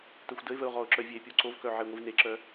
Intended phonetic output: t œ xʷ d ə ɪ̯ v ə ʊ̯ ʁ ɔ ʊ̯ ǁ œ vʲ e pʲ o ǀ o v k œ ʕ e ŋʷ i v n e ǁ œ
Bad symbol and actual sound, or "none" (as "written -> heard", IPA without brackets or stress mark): none